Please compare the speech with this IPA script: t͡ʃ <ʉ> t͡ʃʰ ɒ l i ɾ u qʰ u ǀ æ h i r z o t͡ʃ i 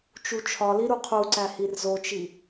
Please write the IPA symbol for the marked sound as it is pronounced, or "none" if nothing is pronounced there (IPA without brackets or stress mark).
u